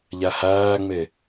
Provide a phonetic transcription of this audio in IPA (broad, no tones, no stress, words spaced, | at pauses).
ʎæhæːŋ͡me